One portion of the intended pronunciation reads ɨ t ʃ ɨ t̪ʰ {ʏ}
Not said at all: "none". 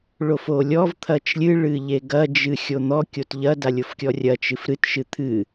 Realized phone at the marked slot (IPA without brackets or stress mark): ɨ